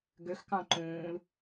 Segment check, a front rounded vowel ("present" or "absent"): present